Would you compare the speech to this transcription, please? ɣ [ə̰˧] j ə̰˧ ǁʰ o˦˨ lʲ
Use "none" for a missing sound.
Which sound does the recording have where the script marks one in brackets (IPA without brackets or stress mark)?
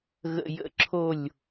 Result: ə̰˧